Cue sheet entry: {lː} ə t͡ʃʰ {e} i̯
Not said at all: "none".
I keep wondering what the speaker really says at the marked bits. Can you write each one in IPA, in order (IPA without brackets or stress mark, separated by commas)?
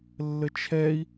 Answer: lː, ɛ